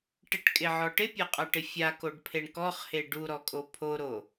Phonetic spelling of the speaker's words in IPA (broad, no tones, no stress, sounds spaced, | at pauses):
ʈ ɪ ʈ kʼ ɪ ʕ ɔ ʈ ɪ pʲ a qʼ a ʈ ɪ fʲ a k o ɖ pʰ e ɳ k ɔ χ h e ɖ u ɾ ɔ kʼ o pʰ o ɾ o